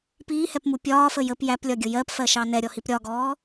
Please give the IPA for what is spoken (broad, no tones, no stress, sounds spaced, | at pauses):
p iː h ɛ p m u pʲ ɒː f ə j ə p j æ p lʲ ɒ ɡʲ ʊ j ɜ p f ɜ ʃ ɑ n ɛ ɾʲ ɔ h i p ɾʲ ɒ ɡ ɔː